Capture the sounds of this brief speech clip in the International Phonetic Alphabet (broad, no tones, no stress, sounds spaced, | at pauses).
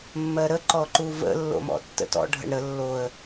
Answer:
mː ɜ ɾ ə ǃ ɔ ǃ u v ə̰ lː o̰ m ɔ̰ tː ə̰ t ɔ̰ ɖʱ ə̰ ɳ ɾ ə lː o ə̯